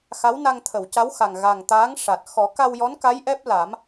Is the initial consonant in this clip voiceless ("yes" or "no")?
yes